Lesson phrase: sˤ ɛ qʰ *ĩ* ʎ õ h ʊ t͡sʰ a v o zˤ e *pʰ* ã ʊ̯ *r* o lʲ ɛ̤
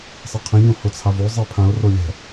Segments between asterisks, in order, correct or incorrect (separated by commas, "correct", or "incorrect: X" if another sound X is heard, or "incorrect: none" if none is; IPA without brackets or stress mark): correct, correct, correct